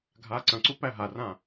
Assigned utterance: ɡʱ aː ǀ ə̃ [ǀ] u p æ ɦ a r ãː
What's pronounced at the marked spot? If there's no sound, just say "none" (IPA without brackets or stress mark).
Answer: ǀ